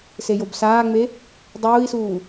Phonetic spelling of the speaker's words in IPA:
s e j o b s aː ŋ͡m e | dˤ uː i̯ s uː

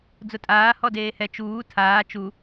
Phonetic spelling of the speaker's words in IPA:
d͡z ʊ tʼ aː h ɔ d eː h ɛ t͡ʃ uː tʰ aː t͡ʃ u

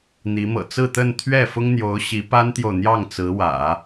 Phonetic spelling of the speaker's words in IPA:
n̪ i˧˥ m ɤ̰˨˩ t͡s ɹ̩˥˧ t̪ ə˥˧ n t̪ʰ ɥ ɛ˥˩ f ʊ˥ ŋ n̪ j o˧˥ ʊ̯ ɕ i˧˥ p a˥ n t̪ j o˨ ʊ̯ n̪ j ɑ˥˩ ŋ t͡s ɹ̩˧˥ w ä̰˨˩˦

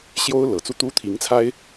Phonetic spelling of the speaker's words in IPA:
ɕ j o˥ ʊ̯ l ɤ˨˩ t͡s u˥ t̪ u˥ t̪ʰ i˧˥ ŋ t͡sʰ a˥ ɪ̯

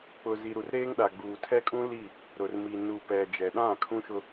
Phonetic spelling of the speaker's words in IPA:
k͡p ʊ˨ z i˨ ɾ u˨ r ɾ eː˦ ŋ ɗ a˨ ɡ͡b uː˨ tʰ ɛ˦ kʼ ũ˦ l i˦˨ | ɾ ʊ˨ r m i˨ n u˨ p ɛ˨ d͡ʒ ɛ˨ ɗ ã˦˨ kʰ ũ˦ ʃ ʊ˦

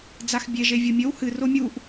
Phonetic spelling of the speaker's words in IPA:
d͡z a x bʲ e ʒ e vʲ o mʲ ɵ w h ɨ r o mʲ u ʔ

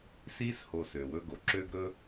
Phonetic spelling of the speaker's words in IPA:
s iː˧ s h o˨ s ø˨ w ɵ˧ ɡ o˨ ǁ ø˧ ɡ ɾ ɵ˧

